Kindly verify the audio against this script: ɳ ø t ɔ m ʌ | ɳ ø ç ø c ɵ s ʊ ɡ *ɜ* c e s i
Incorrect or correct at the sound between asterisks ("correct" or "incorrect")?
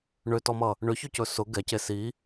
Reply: incorrect